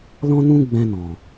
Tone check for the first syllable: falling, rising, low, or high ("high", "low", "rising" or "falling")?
high